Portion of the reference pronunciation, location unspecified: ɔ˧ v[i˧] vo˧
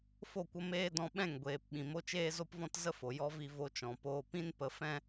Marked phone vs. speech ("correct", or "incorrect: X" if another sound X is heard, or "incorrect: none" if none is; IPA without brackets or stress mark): correct